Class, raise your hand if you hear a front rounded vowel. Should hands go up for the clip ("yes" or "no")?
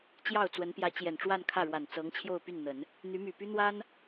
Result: yes